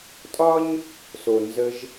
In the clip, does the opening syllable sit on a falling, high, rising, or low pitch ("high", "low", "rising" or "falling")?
high